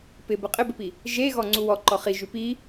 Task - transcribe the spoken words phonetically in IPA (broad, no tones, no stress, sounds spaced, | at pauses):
p ɪ b ə qʼ ɪ b ɪ p i | ʒ e ɣ ɔ ŋ͡ǀ u w ɔ ǃ ɔ χ i ʒ ʉ p i